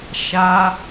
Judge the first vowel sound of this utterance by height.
low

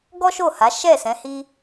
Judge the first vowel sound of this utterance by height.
mid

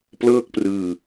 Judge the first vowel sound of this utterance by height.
mid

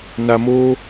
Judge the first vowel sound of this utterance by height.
low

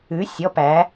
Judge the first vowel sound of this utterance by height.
high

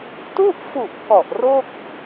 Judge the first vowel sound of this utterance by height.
high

